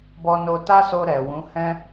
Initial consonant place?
labial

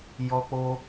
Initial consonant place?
palatal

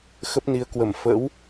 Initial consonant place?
velar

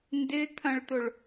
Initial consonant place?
alveolar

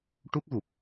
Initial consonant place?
retroflex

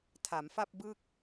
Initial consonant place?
alveolar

